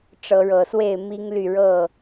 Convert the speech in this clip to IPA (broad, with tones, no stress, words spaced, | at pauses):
ʈ͡ʂɤ˨˦ɻɤ˨˩swe˥˨ɪ̯ mi˦ŋly˥˨ ɻɤ˥˨